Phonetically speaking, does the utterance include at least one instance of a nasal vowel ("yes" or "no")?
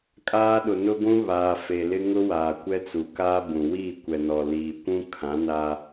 yes